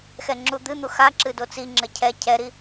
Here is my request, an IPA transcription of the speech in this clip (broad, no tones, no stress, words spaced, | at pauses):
xɛŋ͡ǁud̪ɨn̪u xa ǁɨdot͡siŋ͡ǁɘ cʰɛ cʰɛɾi